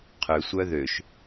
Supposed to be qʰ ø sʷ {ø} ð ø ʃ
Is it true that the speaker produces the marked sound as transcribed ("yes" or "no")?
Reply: no